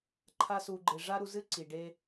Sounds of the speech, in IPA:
ǃʰ a˧ s u˨ ɡ͡ǃ e˨ ʐ a˦ ɾ u˧ z ɨ˦ ǀ i˨ ɖ e˦

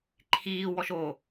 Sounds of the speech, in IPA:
ǃʰ iː w ɔ ʃ o

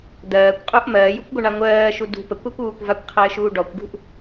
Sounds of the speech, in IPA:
d̪ ɜː kʷ qʼ u ʔ m ɜː j u kʷ ɡʷ ə ɳ a ŋʷ ɜː ʃ u d ṳ p ə kʷ a kʷ uː kʷ v a kʷ qʰ ɘː ʃ uː ɖ ɔ kʷ ɡ ṳ ʔ

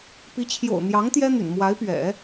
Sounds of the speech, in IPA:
p i˧˥ t͡ɕʰ j o̰˨˩ ʊ̯ n̪ j ɑ˧˥ ŋ t̪ j ɛ˥ n̪ y̰˨˩ n m w a˧˥ ɪ̯ p ɥ ɛ̰˨˩˦

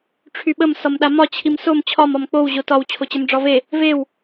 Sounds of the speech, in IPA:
ʈ͡ʂʰ y ɓ ə m s ɒ m ɗ a m ɒ t͡ɕʰ i m s o m t͡ɕʰ ɒ m ɒ m k͡p o w ʑ o t ɒ w t͡ɕʰ o t͡ɕ ə m ɖ͡ʐ ɒ v e | v e w

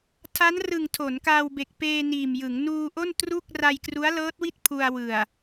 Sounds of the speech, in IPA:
tʰ a˦˥ n r ɯ˨˩ ŋ tʰ o˩˦ n k aː˧ w b e˨˩ k̚ p eː˧ n iː˨˩ m j ɯ˩˦ ŋ n uː˧ ʔ o˥˩ n t r u˥˩ k̚ r a˧ j k r u˦˥ a̯ l ɤː˦˥ t̚ w i˥˩ t̚ pʰ u˧ a̯ w ɯ˨˩ a̯

